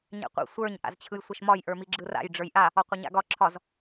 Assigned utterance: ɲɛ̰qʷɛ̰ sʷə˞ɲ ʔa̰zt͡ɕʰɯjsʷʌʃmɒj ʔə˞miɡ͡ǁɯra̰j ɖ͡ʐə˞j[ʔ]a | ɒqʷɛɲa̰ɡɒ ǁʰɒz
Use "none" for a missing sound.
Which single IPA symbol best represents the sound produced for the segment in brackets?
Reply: ʔ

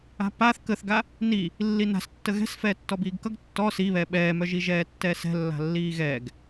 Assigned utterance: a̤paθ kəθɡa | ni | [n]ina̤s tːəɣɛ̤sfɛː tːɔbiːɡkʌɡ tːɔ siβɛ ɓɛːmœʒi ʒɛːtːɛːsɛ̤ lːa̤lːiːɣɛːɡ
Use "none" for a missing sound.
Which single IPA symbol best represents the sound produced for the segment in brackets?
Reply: lː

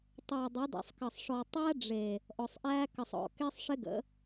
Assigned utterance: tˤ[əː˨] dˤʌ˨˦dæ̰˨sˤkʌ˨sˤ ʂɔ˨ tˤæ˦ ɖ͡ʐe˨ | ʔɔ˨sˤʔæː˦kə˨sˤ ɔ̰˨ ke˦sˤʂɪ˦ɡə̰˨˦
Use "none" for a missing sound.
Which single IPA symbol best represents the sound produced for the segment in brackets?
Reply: əː˨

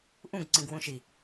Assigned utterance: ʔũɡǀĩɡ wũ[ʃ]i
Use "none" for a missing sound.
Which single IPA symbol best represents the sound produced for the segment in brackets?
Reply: ʃ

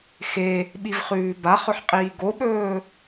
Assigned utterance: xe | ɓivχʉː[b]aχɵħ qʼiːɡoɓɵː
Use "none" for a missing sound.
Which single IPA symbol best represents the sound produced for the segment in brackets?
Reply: b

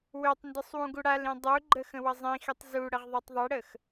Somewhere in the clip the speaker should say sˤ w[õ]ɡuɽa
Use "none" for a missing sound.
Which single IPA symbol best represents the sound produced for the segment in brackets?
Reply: ũ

